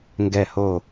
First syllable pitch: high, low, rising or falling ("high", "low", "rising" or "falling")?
falling